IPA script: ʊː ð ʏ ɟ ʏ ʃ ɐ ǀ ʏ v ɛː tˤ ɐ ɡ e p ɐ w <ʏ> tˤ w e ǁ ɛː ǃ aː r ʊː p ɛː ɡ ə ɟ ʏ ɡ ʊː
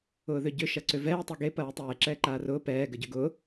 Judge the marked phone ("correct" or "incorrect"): correct